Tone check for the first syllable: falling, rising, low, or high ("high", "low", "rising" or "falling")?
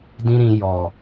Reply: high